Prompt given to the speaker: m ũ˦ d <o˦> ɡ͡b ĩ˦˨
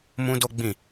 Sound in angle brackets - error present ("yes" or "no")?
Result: no